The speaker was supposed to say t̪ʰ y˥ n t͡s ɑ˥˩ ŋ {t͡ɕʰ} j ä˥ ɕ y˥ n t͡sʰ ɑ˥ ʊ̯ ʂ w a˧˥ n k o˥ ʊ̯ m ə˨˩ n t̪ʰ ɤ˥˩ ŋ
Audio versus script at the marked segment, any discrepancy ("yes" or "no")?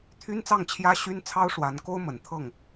no